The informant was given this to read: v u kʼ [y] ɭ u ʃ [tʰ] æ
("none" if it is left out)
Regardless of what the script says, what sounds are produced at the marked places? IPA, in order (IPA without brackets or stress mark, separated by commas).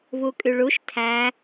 y, tʰ